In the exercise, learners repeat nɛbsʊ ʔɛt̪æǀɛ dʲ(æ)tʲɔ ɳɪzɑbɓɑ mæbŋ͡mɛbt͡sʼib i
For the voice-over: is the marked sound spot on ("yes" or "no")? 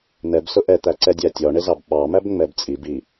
yes